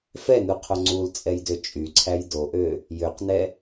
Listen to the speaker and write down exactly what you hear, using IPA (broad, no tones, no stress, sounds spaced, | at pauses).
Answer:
f ɛ n u qʰ o ŋ͡ǀ u l t͡sʼ ɛ j d ø t͡ʃʼ y ǀʰ æ j d o ʔ ø | j ø q n ɛ